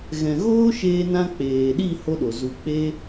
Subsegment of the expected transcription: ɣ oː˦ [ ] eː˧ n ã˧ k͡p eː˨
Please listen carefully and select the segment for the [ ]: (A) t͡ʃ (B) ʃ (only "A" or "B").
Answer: B